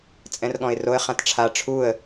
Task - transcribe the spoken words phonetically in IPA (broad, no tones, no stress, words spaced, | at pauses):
t͡sʼɛ̃rɠɔ̃ɪ̯roə̯ χãtʈ͡ʂʰa ʈ͡ʂʰuə̯